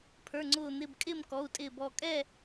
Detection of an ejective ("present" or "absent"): present